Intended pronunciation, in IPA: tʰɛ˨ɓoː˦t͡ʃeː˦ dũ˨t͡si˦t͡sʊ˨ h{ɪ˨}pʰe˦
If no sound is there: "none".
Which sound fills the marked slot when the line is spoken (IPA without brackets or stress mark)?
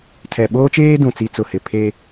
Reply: ɪ˨